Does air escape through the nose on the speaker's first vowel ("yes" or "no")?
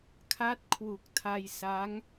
no